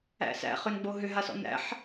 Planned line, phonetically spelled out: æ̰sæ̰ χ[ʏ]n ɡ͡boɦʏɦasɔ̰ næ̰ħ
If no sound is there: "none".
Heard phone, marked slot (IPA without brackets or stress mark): ʏ